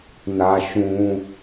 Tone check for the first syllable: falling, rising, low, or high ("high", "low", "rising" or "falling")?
high